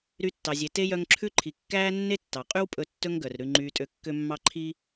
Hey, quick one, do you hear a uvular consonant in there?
yes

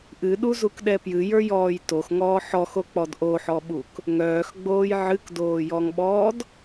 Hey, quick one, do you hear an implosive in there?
yes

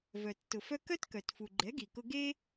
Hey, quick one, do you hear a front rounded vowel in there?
yes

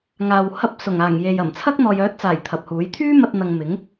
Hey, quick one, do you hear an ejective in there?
no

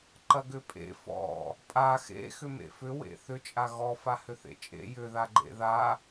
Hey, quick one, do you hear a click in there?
yes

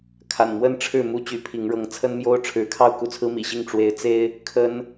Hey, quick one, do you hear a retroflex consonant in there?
yes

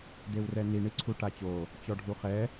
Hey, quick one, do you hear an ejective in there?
no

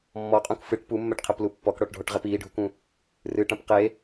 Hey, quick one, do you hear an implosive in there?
no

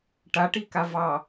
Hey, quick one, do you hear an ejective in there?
no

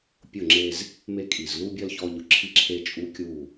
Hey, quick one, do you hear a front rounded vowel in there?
no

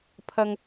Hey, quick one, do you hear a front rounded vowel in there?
no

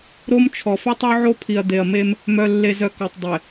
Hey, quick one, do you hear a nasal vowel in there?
no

